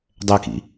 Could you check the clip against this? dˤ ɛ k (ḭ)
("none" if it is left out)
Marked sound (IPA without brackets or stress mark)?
ḭ